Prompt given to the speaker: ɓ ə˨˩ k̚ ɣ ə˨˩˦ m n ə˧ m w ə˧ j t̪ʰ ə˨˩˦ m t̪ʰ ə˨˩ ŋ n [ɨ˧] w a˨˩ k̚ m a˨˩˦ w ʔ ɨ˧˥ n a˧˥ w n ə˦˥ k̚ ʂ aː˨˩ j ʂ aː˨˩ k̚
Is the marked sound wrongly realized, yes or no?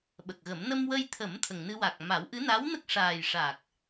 no